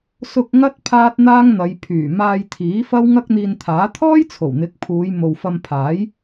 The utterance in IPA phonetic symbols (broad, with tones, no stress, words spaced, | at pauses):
sʊ˧k̚ ŋɐ˥t̚ pʰaː˥t̚n̪aː˥ŋn̪ɐ˨˧j pʰyː˨˩maː˧j t̪ʰiː˨˥fɐ˥w ŋɐ˥k̚n̪iː˧nt̪ʰaː˨˥ t̪ʰɔː˥j t͡sʰo˨˩wn̪ɪ˨˥k̚ pʰuː˨˧jmo˨w fɐ˧mpʰaː˨˥j